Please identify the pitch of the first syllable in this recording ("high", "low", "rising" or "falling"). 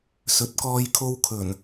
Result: rising